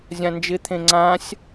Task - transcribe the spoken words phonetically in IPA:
zʲãnd͡ʒɪt̪ʰẽ ŋ͡ǀãsʲ

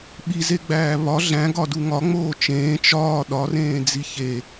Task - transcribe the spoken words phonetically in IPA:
ɓizeɡ͡bæː βɒ ɮæ̃ɡɒdu ŋɒŋ͡moː t͡ʃẽː t͡ʃɒː ɗɒrẽːd͡zi çe

